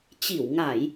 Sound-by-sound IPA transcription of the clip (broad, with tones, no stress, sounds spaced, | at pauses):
t͡ɕ i˧˩ w ŋ a˧˩˨ j